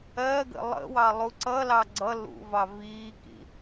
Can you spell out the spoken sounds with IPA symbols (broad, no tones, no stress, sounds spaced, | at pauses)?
ɜ ɡ ə̰ lˠ ə̰ w ɑ lˠ u ǀ ʌ l ɑ ɡ͡ǀ ʌ l ṵ v ɑ v iː k ḭ